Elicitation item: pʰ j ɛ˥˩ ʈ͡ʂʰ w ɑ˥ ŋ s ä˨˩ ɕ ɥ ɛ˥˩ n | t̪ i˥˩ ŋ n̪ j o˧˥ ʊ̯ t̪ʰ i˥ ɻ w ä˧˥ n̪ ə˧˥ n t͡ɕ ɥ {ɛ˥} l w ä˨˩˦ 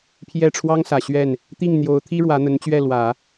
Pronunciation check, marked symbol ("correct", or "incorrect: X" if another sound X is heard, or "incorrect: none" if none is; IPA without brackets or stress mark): incorrect: ɛ˥˩